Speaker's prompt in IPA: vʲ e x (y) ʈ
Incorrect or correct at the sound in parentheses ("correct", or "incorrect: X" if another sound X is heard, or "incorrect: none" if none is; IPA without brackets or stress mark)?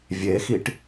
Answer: incorrect: i